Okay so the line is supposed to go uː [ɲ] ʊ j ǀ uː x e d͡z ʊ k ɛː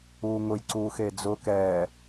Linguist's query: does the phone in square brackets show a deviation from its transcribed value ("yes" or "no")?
yes